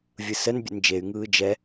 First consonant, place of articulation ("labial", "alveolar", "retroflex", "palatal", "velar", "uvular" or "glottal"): labial